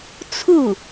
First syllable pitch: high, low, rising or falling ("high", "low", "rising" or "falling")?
falling